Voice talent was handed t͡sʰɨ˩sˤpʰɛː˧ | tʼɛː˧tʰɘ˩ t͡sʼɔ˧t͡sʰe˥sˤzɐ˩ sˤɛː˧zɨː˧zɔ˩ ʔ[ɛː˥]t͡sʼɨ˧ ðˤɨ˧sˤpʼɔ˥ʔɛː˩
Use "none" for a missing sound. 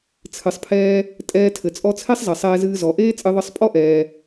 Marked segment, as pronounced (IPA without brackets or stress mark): eː˥